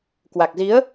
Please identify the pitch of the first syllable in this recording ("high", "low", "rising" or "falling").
low